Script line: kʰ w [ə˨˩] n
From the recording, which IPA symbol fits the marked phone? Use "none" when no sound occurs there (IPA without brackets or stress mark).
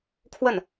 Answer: ə˥˩